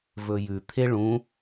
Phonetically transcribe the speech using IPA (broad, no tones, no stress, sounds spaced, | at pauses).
v ɵ j ʉ t̪ʰ e ɭ ũ